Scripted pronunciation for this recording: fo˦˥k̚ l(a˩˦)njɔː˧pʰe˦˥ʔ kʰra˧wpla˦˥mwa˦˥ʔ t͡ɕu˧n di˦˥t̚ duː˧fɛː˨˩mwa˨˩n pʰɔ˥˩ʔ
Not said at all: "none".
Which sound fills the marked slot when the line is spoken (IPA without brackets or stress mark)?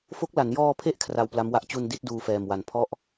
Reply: a˩˦